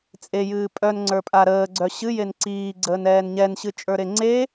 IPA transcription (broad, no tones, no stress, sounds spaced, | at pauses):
t͡sʼ e j ɨː pʼ œ n ŋ͡ǀ ə˞ pʼ a ɾ əː ɡ͡ǀ œ ɕ ɨ j e n ǀ iː ɡ͡ǀ əː n ɛː n ɲ ɛ n ɕ ɨ t͡ʃʼ ə˞ ɾ e ŋ͡ǀ e